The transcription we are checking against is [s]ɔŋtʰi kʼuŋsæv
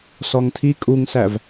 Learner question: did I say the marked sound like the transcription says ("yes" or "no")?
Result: yes